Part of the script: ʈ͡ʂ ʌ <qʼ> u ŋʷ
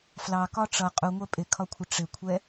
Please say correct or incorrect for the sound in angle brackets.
correct